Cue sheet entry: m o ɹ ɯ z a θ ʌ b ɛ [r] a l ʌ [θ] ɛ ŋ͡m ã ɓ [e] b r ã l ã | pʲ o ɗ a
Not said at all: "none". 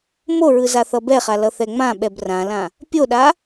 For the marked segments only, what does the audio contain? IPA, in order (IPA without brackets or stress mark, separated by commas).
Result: χ, θ, ɛ